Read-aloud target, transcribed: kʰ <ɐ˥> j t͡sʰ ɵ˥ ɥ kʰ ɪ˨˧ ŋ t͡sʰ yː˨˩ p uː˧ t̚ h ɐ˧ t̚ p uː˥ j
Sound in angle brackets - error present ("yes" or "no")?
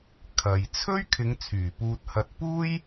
yes